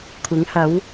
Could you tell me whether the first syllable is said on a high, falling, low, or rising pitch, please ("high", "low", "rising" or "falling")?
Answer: rising